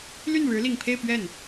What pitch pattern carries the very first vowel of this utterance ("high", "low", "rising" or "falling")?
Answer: falling